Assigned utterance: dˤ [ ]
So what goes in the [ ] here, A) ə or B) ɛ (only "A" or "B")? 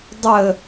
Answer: A